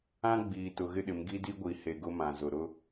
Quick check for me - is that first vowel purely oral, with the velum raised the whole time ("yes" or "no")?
no